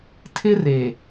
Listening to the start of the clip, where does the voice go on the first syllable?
high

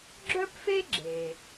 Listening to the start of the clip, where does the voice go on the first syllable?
high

